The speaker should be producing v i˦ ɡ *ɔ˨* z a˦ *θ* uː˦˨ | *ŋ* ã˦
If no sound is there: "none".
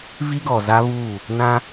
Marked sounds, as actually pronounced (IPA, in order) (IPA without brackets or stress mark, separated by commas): ɔ˨, β, n